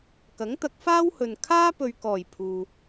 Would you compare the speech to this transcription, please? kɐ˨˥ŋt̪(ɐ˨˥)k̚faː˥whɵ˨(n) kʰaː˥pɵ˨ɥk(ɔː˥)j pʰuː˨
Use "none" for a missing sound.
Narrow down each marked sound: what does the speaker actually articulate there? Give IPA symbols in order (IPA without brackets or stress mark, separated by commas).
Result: ɐ˨˥, n, ɔː˨˩